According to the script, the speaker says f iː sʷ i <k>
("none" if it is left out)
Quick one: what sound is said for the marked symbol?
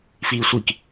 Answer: k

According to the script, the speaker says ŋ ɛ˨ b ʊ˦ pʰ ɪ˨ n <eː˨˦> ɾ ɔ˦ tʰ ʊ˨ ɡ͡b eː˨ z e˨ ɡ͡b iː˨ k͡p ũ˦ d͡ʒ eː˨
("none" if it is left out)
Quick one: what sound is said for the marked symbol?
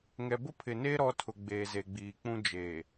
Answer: eː˦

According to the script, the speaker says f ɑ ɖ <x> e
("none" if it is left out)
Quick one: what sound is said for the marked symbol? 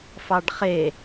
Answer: χ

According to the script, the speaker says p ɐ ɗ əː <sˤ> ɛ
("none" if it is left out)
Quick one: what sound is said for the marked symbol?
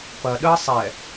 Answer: sˤ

